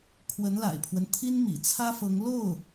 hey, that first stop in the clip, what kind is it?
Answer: aspirated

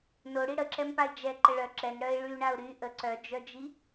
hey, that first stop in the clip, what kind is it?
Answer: click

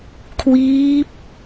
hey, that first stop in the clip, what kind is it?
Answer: aspirated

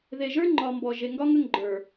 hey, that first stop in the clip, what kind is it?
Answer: click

